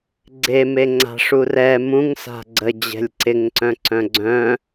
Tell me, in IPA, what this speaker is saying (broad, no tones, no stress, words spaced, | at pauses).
ɡ͡ǀemeŋ͡ǀa̤ʂu rɛ mũŋsa̤ ɡ͡ǀəd͡ʑɛ̤lʲ ǀɪŋǀœ̃ǀœ̃ ɡ͡ǀœ̃